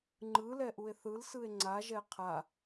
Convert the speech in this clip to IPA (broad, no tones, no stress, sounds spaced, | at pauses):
ŋ͡ǃ ɯ l ɛ ʔ u e̯ θ ɯ l s ɯ e̯ ŋ͡ǀ a ʒ ɛ qʰ a